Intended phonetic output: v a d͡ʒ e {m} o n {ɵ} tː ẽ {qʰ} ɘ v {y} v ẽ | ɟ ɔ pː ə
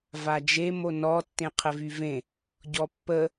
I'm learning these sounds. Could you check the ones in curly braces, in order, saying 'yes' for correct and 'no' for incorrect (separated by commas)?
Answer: yes, no, yes, yes